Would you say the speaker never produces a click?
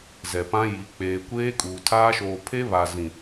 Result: yes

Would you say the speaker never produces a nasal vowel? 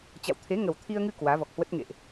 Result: yes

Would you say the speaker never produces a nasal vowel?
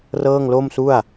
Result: yes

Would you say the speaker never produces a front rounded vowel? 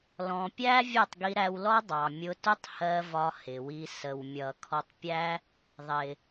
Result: yes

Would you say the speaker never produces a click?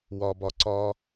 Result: no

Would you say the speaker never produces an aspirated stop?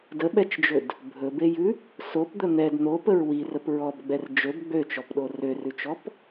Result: yes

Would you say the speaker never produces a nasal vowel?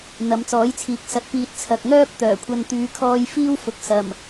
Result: yes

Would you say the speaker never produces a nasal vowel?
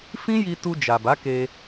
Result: no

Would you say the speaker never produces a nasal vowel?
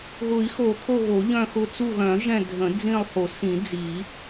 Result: no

